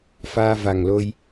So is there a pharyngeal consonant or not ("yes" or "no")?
no